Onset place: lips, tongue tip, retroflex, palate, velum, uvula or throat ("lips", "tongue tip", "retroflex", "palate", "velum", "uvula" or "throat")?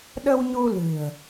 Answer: tongue tip